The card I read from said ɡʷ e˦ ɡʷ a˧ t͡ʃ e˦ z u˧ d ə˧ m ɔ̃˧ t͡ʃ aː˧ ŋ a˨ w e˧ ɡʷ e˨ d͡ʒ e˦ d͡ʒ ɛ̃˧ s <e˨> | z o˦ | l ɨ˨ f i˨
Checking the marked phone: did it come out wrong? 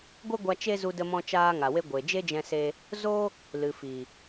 yes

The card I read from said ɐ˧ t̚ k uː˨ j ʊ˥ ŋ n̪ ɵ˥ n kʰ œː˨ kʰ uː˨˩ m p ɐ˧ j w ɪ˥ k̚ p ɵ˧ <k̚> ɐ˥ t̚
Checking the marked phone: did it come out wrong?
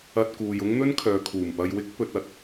yes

